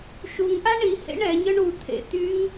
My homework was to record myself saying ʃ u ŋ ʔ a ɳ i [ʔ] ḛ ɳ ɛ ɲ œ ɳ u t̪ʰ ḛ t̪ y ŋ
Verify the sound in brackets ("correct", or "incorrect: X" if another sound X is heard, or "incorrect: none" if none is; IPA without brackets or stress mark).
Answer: incorrect: h